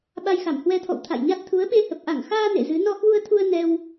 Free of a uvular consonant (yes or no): yes